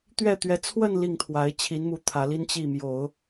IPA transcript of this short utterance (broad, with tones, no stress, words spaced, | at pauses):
t̪ɥɛ˥˩t̪ɥɛ˧˥ t͡sʰwə˥˧n li˥˩ŋt̪ʰwa˧˥ɪ̯ t͡ɕʰi˧˥nmu˧˥ t̪ʰä˧˥li˥n t͡ɕi˥˩mjo˨˩˦ʊ̯